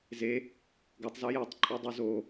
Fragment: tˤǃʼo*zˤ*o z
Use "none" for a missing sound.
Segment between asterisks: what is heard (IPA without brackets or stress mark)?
dˤ